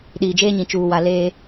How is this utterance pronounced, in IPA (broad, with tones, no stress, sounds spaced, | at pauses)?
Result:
ɗ iː˨ d͡ʒ eː˦ ɲ ĩ˨ t͡ʃ uː˨ w a˨ l eː˦